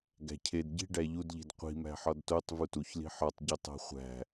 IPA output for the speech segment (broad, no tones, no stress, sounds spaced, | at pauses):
ɡ æ̤ cʰ e d ɟ i̤ ɖ æ ʎ u d ʎ i̤ d qʷ i̤ m æ̤ ħ ɒ d t o tˤ v u t u ç l i̤ ħ ɒ tˤ ɟ o tˤ æ̤ χʷ æ̤